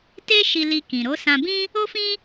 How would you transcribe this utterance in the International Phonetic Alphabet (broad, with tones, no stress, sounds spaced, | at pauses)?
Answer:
t e˦ ʃ i˧ l i˧ k ĩ˨ ɾ o˨˦ s ã˧ b ĩ˦ | o˦ f ĩ˦